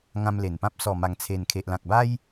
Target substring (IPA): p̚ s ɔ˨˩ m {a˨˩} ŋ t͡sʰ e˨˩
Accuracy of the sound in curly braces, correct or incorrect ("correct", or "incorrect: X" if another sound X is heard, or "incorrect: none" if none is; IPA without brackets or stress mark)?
correct